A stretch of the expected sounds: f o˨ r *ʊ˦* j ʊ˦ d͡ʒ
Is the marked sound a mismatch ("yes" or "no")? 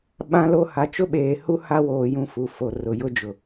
yes